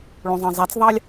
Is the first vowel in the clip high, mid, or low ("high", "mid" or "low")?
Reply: mid